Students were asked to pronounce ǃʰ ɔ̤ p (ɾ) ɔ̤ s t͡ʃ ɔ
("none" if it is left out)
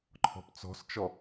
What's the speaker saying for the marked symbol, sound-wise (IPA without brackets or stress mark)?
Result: t͡s